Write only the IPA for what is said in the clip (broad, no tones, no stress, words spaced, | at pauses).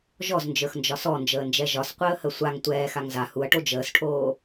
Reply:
ʒɔznd͡ʒə˞xnd͡ʒɒ sɔnd͡ʒəːnd͡ʒɛ ʒɒsqʷəːhə sʷaŋ tʷɛːxaŋ za huɐ̯ʈo d͡ʒəːsʈʰoː